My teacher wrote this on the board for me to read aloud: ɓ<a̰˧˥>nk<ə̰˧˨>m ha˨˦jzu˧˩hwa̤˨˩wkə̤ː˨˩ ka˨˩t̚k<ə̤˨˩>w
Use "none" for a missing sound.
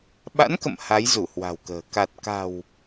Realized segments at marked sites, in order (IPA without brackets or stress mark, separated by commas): a̰˧˥, ə̰˧˨, a̤˨˩